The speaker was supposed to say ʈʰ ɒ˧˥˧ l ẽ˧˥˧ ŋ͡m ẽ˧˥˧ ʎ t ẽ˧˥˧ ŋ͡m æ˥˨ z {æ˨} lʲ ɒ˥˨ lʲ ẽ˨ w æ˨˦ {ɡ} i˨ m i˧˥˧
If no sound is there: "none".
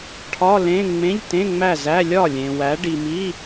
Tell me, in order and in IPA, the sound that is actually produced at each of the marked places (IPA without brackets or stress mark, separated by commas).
æ˧˥˧, ɖ